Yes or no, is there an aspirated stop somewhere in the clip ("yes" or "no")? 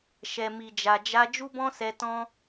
no